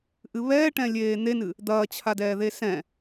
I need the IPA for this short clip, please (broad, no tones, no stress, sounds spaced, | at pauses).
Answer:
ʔ ɨ β ɛː ʈ ɛ̃ lʲ eː n̪ e n ɨ | d̪ ɐː t͡ɕʰ a d ɛː ð e s ɛ̃